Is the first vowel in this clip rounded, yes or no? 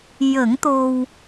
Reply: no